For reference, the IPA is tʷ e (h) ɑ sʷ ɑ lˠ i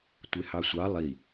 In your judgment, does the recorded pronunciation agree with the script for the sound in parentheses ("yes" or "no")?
yes